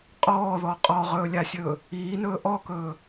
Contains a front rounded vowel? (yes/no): no